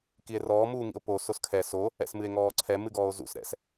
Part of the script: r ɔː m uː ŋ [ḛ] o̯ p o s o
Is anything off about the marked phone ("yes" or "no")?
yes